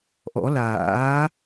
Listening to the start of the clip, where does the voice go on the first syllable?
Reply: rising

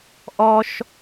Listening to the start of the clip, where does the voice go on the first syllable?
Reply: high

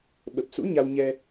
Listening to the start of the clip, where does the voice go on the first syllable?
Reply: low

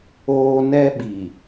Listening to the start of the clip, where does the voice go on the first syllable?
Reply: high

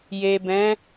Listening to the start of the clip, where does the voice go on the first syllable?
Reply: low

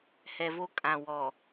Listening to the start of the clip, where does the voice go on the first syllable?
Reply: low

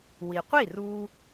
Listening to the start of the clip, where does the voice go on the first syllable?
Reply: low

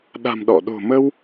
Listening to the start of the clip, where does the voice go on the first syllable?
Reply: low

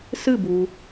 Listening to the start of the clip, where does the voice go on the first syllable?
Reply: falling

